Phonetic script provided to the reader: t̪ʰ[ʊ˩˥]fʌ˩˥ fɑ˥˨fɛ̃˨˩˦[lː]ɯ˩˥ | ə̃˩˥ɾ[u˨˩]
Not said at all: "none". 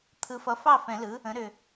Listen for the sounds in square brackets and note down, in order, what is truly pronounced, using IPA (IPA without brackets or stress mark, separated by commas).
ɯ˩˥, l, ʏ˨˩